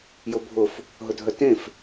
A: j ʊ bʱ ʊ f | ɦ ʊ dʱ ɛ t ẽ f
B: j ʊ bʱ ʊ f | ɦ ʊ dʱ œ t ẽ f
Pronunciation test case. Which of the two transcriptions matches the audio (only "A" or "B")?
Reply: B